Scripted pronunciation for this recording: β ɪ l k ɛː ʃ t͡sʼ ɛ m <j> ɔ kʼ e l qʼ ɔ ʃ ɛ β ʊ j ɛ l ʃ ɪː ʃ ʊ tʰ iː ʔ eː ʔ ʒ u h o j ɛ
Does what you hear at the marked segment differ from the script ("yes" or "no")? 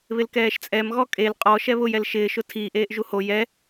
yes